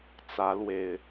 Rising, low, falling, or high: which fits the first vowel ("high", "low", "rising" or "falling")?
rising